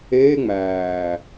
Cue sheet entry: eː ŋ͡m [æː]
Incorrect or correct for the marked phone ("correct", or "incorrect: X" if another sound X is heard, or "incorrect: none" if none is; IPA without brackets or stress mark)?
correct